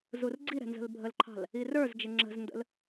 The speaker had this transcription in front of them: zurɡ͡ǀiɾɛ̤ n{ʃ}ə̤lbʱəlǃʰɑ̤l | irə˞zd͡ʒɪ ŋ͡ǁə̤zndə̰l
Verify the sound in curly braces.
incorrect: z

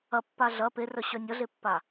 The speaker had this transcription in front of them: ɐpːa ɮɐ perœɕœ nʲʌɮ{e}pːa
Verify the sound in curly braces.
correct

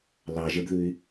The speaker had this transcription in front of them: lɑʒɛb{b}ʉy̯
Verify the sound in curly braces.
incorrect: ð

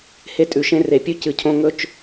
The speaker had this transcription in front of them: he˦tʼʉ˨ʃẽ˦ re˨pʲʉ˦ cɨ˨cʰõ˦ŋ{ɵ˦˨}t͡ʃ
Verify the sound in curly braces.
correct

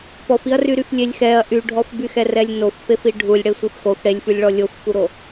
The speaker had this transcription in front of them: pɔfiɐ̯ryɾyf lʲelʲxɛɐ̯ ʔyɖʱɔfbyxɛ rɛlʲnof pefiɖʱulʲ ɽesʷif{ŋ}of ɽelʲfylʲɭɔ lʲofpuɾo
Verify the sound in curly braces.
incorrect: x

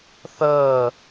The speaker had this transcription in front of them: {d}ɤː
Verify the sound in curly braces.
incorrect: θ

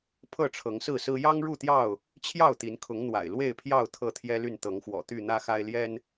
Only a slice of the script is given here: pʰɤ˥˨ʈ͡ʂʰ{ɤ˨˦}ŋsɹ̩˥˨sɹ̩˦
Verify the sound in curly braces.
correct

